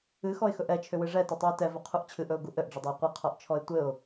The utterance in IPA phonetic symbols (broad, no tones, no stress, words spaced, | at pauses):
ɨxɔɪ̯xɵʔ ɛt͡ʃʰʏwɨ ʐɛtɵtˤuɪ̯ tɛvɵqʰuʔ t͡ɕʰɨʔɵʊ̯ɡu ʔɘʔɖ͡ʐɘdˤɘɪ̯ qʷɨqʰɔʔt͡ʃʰɔɪ̯ tʷɘʊ̯